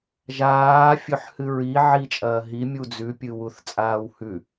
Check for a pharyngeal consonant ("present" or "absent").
present